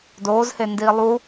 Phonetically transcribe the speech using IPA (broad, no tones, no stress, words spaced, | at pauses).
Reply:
doːzhendiː lˠu